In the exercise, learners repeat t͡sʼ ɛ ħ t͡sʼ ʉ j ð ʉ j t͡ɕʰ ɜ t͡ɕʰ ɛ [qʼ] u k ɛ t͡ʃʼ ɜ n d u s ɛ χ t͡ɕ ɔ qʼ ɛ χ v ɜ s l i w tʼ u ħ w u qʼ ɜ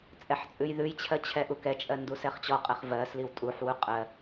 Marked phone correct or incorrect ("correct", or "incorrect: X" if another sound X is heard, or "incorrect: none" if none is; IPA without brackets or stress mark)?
incorrect: ʔ